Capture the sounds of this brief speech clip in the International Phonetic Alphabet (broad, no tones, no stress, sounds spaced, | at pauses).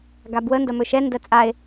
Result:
ɡ a b w ə n d ɐ m ɵ ʃ ɛ n d ɜ t͡sʼ a e̯